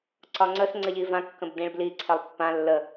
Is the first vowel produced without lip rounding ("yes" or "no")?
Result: no